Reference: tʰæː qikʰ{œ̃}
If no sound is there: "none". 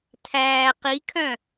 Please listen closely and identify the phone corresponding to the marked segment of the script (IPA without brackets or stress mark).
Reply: œ̃